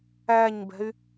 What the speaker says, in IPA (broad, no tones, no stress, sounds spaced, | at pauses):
æ ɲ b ɛ̤ y̯